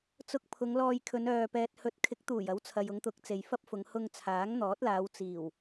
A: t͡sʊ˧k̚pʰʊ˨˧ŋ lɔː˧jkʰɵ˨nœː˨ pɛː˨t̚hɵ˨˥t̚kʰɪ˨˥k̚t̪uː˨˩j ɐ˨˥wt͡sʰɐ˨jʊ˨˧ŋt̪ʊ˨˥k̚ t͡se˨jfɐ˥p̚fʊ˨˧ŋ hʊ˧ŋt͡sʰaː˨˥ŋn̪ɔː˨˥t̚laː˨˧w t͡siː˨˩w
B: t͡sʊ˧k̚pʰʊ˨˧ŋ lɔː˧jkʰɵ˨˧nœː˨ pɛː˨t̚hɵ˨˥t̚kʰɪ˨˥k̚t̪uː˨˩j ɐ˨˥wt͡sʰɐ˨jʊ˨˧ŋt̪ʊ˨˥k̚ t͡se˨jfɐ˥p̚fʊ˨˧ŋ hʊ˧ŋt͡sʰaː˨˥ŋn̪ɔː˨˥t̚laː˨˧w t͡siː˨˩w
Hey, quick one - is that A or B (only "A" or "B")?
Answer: B